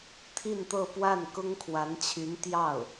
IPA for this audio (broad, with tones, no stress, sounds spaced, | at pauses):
t̪ʰ i˥˧ n t̪ ɤ˥˧ p w a˥˩ n k ʊ˥ ŋ kʰ w a˧˥ n t͡ɕʰ y˧˥ n t̪ j ɑ˥˩ ʊ̯